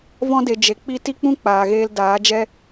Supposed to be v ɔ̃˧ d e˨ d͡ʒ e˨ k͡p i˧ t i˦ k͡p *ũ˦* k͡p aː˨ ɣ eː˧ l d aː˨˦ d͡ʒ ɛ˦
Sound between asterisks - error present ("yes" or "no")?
no